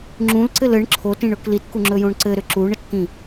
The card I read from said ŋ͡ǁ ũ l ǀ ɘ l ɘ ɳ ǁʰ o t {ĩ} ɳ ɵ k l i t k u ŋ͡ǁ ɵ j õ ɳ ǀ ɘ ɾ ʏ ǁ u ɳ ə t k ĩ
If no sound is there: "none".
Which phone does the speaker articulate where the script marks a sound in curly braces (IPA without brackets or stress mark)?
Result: ĩ